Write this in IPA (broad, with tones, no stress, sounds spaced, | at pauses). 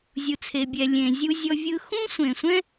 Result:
zʲ u˨ t͡sʰ e˨ bʲ ɛ˨ lʲ ẽ˨ zʲ u˧ zʲ ɔ˧ vʲ ɯ˧ x ũ˦ sʷ ẽ˨ sʷ ɛ̃˦